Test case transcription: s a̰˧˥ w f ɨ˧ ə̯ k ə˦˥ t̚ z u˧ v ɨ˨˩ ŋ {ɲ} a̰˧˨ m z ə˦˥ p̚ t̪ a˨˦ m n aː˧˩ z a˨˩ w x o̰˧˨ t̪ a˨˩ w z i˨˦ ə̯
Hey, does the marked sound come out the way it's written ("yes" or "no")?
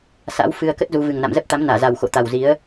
no